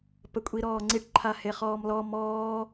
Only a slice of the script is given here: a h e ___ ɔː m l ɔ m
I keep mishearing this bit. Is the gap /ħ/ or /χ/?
χ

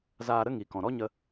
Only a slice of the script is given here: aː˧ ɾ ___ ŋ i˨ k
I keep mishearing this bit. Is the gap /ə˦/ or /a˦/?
ə˦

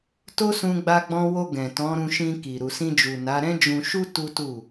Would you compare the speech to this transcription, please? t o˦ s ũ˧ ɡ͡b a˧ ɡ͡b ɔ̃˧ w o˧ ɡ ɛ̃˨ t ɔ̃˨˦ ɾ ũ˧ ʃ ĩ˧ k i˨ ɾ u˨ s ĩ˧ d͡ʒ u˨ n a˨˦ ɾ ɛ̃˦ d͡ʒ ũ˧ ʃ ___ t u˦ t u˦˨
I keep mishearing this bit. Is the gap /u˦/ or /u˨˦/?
u˦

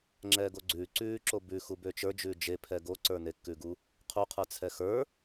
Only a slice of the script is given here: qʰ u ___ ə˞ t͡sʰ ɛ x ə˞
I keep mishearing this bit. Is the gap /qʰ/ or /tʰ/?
qʰ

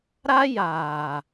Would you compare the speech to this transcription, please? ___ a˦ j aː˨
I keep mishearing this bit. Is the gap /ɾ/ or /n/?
ɾ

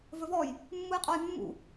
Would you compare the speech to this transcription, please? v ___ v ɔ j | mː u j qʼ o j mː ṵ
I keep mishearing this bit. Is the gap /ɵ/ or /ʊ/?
ɵ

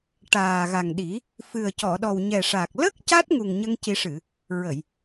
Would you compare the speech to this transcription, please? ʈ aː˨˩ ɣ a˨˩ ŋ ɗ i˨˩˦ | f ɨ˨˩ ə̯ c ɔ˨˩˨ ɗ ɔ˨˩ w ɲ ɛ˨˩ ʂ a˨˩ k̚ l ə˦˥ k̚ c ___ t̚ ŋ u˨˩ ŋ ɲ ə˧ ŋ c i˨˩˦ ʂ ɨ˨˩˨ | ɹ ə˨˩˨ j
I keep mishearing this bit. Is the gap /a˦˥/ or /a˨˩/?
a˦˥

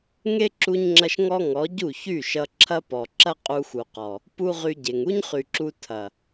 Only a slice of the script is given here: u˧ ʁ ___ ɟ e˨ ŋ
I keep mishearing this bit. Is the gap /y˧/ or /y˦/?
y˧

